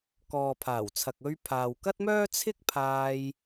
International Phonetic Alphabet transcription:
k ɔː˨ pʰ aː˨˩ w t͡sʰ ɐ˨ k̚ ɵ˧ ɥ pʰ aː˨ w k ɐ˥ t̚ m œː˥ t͡sʰ ɪ˥ k̚ pʰ aː˧ j

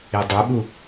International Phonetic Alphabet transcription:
i dˤ u ɓ u

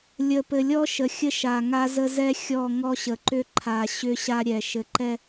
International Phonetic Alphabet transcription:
lʲ ə˨ p ɘ˨ lʲ ɔ˦ ʃ ə˨ xʲ ə˦ ʃ a˨ ŋ a˦ z ə˦ z ɛ˦ xʲ ɔ˦˨ ŋ ɔ˦ ɕ ə˨ ǃ ʏ˦ ǃʰ a˨ ɕ ʏ˦ ɕ a˦ ɾʲ ɛ˨ ʃ ɘ˨ ǃ ɛ˦

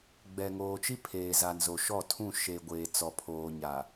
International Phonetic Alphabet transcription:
ɡ͡b ɛ˨ ŋ oː˨ t͡ʃ i˦ pʰ eː˨ z a˨ n z o˨ ʃ ɔ˦˨ tʰ ũ˦˨ ʃ e˨ ɡʷ eː˨ t͡s ɔ˨ pʰ oː˨ ɲ a˨

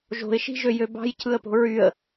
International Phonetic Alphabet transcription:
ʒ o̤ ɪ̯ ʃ i̤ ʒ ø j ø b ɑ̤ j cʰ ɯ ə̯ p o̤ ɹ y ə̯

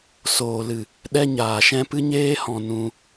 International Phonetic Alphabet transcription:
s oː˨ l ɨ˨ | ɗ ɛ˧ ɲ aː˨ ʃ ɛ̃˧ p ɨ˧ ɲ eː˧ h ɔ̃˨ n ũ˧

